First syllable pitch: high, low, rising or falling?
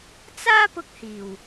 high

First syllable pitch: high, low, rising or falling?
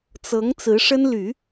rising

